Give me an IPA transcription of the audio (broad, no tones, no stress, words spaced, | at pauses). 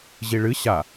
ʑiɭɨ ɕa